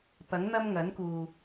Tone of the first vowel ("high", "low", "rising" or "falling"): rising